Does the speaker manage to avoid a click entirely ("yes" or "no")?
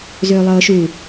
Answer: yes